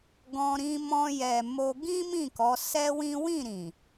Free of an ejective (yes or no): yes